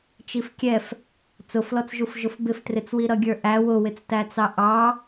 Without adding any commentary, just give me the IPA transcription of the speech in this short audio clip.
t͡ʃifkʲɛf | t͡sʊflɔt͡sʒuf ʒʊfbɪftrɪt͡swi ɾʌɡʲə˞ʔæ wʊwɪt͡stæt͡sɑ ʔɑ

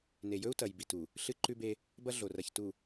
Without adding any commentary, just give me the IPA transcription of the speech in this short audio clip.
ne˨jɵ˦u̯tɐ˨jbi˨ tu˨ | ɬɨ˦ǃʉ˦be˦ | bɐ˦ɮo˨rɐ˨ç tu˨

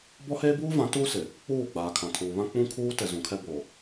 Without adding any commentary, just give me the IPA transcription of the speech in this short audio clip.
bɔ˦heː˦ buː˦vã˨˦ tuː˦sɪ˨ | k͡puː˦˨ɡ͡baː˨ kʰã˨tʰuː˨βã˦ k͡pũ˦kʰuː˦ tɛ˨ zũ˨kʰɛ˦boː˨

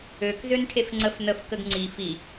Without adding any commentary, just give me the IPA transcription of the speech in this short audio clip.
økzøn ʈʰefŋ͡ǀəf nəf kəɡŋ͡ǀi fi

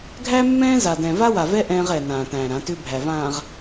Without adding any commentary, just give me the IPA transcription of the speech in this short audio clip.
ɡʱæ˦mːɛ̃ː˦za˨dɛ̃˨ va˦wa˨vɛ˦ ʔɛ̃ː˦ʁɛ˨nãː˨ tæ̃ː˨ɾã˨˦tʏː˦bʱæ˨ vãː˨ʁ

